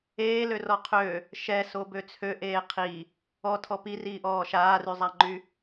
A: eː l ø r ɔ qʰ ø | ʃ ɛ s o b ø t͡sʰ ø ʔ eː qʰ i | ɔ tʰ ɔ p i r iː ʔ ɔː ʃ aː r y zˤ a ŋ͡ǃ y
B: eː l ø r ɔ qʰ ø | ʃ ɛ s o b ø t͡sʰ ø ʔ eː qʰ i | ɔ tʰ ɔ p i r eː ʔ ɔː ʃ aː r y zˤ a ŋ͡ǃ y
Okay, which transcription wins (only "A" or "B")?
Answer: A